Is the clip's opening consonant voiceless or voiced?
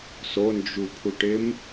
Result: voiceless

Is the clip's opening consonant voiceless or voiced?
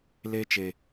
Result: voiced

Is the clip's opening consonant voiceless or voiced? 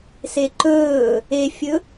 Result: voiceless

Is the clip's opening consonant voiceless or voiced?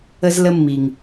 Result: voiced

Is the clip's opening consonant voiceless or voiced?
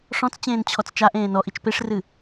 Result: voiceless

